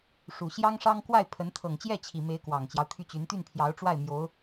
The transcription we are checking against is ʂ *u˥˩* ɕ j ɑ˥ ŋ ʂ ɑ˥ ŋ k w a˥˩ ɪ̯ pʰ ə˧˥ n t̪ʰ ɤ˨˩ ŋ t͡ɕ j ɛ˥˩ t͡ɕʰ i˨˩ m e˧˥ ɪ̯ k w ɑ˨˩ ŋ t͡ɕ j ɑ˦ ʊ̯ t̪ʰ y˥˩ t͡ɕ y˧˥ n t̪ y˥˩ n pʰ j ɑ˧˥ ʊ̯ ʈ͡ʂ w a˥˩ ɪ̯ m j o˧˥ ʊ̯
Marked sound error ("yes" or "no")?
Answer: yes